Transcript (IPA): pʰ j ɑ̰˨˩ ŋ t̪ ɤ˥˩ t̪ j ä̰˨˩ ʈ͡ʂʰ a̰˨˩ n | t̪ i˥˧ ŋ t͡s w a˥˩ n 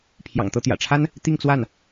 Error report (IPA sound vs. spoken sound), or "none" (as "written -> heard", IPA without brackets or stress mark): a̰˨˩ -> a˥